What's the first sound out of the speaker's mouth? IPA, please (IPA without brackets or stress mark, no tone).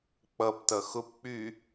k͡p